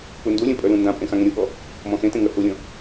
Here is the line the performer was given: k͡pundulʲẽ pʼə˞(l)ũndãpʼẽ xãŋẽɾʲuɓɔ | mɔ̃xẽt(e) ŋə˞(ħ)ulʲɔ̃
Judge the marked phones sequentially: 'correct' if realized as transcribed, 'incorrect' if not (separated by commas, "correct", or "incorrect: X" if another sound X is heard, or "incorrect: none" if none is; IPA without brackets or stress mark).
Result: correct, incorrect: ẽ, incorrect: h